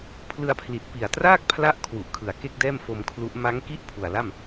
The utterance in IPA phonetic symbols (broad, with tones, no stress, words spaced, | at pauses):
pʰlɯ˧a̯pʰli˨˩t̚ pi˨˩a̯traː˥˩k̚pʰla˦˥ʔ kʰwu˨˩ʔkʰɯ˨˩a̯ke˥˩k̚dɛː˥˩m fo˧mkʰlu˦˥ʔ ma˦˥ŋ ki˥˩ʔ pʰu˨˩a̯la˥˩m